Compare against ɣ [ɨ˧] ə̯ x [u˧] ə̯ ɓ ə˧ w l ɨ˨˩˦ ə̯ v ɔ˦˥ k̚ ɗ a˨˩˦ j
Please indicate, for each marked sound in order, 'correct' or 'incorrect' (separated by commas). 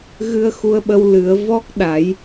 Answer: correct, correct